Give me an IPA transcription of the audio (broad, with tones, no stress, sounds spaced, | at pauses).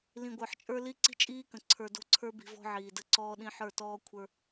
l ĩ˨ ɡʷ ə˞˨ ħ t͡ʃʼ ə˞˦ l i˦ ǀ i̤˦ t͡ʃʼ iː˦ k ə̃˨ ǀʰ ə˞˨ d o̤˦˨ ǀʰ ə˞˦ b i̤˨ v ɔ̤˦ ʕ iː˨ d ə˦˨ ǀ ɔː˦ ɗ ĩ˦ ħ ə˞˦˨ t ɔː˦ kʷʰ ə˞˦